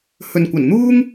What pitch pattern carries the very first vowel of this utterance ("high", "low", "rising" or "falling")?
low